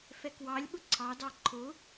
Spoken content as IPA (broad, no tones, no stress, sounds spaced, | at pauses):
f ɛ k w ɑ lʲ ɓ ʊ ǀʰ ɑ d ɑ ǃʰ ʊ